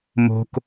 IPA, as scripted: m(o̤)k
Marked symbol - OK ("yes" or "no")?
yes